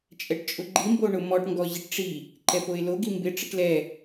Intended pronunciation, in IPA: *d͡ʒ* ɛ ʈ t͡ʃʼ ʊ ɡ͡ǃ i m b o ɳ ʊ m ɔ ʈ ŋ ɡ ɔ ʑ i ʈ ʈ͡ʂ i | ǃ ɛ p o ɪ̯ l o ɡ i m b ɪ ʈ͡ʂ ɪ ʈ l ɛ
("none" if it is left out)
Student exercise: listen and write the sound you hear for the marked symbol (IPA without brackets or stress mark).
t͡ʃʼ